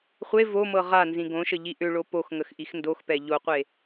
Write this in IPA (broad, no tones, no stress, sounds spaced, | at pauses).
χʷ e v o m ɤ ʁ a n z ĩ ɡ õ ʃ ə ʎ i ʔ ʏ ɭ o p o x ŋ ə x ʔ i x n d o x p ɛ ʎ o qʷ e